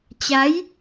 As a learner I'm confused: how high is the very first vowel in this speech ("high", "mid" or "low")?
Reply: low